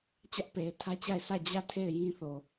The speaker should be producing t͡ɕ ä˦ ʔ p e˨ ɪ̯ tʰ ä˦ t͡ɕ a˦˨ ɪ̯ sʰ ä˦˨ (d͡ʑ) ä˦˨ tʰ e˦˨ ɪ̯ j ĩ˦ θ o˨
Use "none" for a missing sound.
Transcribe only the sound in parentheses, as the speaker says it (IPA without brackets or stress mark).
d͡ʑ